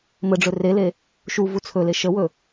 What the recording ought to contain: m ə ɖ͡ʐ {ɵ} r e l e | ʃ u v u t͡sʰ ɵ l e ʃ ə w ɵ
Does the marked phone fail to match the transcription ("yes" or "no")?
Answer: no